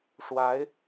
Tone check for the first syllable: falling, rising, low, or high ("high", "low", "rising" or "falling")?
rising